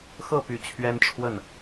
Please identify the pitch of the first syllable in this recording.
falling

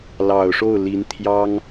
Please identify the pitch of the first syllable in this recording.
low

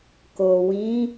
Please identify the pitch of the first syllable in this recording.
low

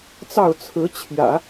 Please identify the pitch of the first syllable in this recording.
falling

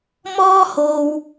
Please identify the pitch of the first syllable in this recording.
high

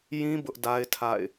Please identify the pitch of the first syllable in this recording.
high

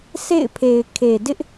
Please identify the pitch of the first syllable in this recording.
falling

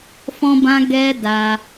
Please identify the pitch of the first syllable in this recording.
high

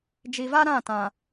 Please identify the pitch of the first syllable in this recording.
low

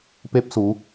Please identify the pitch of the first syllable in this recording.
high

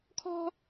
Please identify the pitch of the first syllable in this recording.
high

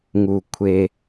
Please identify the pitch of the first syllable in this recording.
low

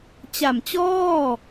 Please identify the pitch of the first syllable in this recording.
low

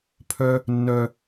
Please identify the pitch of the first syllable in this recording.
high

